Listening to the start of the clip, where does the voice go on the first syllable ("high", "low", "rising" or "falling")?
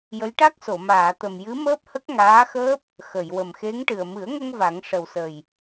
rising